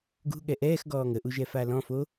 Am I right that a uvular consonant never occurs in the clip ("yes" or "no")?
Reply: yes